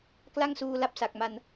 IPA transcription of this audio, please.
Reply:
k l a˥˩ ŋ s uː˧ l a˦˥ p̚ s a˨˩ k̚ m a˧ n

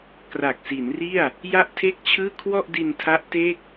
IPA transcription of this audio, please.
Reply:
k r a˨˩ k̚ s i˩˦ n r i˥˩ a̯ | j a˥˩ ʔ tʰ e˥˩ k̚ t͡ɕʰ ɯː˥˩ kʰ w ɔ˥˩ ʔ d i˧ n tʰ a˦˥ ʔ t e˥˩ k̚

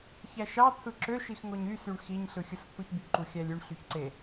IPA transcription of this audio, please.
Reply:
ç æ ʃ ɑ t̪ʰ ɯ ǁ ø ʃ i x ŋ o ɲ y s y ɳ x i ɲ ɬ ɯ xʲ ɯ s pʰ u ç b y ǃ u xʲ æ lʲ y ɳ ɬ y ç ǀ e

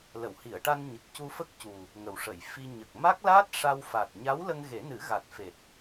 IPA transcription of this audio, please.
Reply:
l ə˨˩˨ w h i˨˩˨ ə̯ ʈ a˧ n ɲ ə˨˩ k̚ c u˧ f ə˦˥ k̚ c u˨˩ | ŋ ə˨˩ w ʂ ə˨˩˨ j f i˧ ɲ ə˨˩ k̚ m a˦˥ k̚ l aː˦˥ t̚ ʂ a˧ w f a˨˩ t̚ ɲ a˧˥ w l ə˧ ŋ ɣ e˨˩˦ n ɨ˨˩˦ ɣ a˨˩ t̚ f e˨˩ t̚

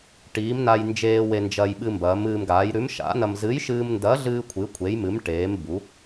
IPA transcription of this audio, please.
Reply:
ʈ iː˨˥ m n a˧ j n d͡ʒ eː˧ w e˧ n d͡ʒ ɐ˧ j ɓ ɨ˧ m b ɐː˨˥ m ɨː˧ m ɡ aː˨˥ j ɾ ʉ˨˥ m ʃ a̰˨˥ n ɐ˧ m z ɨ˨˥ j ʃ ɨː˧ m n d ɐː˨˥ ɮ ɨː˧ kʷʰ ɨ˨˥ kʷʰ e˨˥ j m ɨ˨˥ m ʈ eː˨˥ m b u˨˥

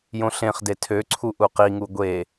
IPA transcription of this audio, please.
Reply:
j õ ɬ ẽ χ d e tʰ ø ǀʰ u ʔ u q i ŋ u ɡʷ e

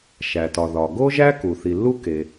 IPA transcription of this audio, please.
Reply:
ʃ æ˩ t ɒ˩ ð ɒ˩ ɡ o˥ ʒ æ˥ k u˩ θ i˩ lː u˥ k e˩

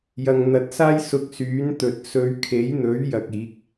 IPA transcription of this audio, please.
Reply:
j ɐ˧ ŋ n̪ ɐ˧ t̚ s aː˥ j s ʊ˧ k̚ s yː˨˥ n t̪ ɵ˨ t̚ s ɵ˨˧ ɥ kʰ e˨˥ j n̪ ɵ˨˥ ɥ j ɐ˧ k̚ iː˨˥ k̚

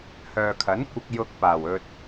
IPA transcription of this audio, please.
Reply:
h œː˨ kʰ ɐ˨˥ n kʷ ɪ˧ k̚ j ʊ˧ k̚ p aː˨˩ w ɵ˨ t̚

